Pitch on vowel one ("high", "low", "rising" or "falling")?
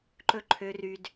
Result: high